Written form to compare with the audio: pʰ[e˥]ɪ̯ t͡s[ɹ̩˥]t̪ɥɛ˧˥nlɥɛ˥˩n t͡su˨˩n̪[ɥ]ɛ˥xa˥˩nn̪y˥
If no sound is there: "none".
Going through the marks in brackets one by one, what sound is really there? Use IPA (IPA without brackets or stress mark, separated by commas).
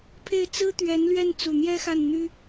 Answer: e˥˩, ɹ̩˥, j